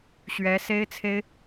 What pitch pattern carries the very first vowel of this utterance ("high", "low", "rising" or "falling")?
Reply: rising